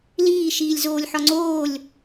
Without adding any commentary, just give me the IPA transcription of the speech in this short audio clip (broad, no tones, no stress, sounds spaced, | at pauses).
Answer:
l iː ʃ iː lʲ z oː lʲ ħ ɒ ŋ͡ǀ oː lʲ